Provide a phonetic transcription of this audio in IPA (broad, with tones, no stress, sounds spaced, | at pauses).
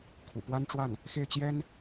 kʰ ṵ˨˩ p w a˥ n ʈ͡ʂ w a˥˩ n | x e˥˩ ɪ̯ t͡ɕ j ɛ˥ n